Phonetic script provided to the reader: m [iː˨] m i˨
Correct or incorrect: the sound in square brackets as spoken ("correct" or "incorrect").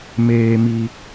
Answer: incorrect